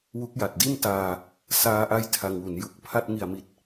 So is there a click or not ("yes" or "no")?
no